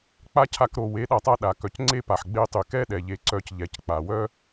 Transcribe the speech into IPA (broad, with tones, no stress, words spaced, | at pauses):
k͡pa˦cʰa˧k ɾo˨ we˨˦ɗa˨tˤa˧ ɗa˨ kœ˨cŋ͡ǀe˦pa˨ħ ɡ͡be˧tˤy˨kɛ˦ɗɛ˨ ʎe˧ ǀœ˧c ʎɛ˧c k͡pa˨ wœ˦